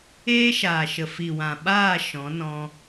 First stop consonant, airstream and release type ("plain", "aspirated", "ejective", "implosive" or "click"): implosive